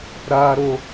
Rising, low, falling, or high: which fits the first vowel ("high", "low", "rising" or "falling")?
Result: high